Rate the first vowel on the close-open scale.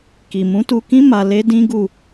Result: close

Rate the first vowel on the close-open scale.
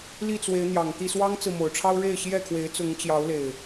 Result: close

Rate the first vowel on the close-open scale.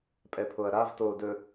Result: mid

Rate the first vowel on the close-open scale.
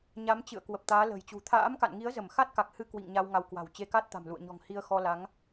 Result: open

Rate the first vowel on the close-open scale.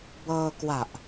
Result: mid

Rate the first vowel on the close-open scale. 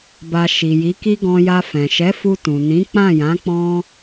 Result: open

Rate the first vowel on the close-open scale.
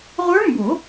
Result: mid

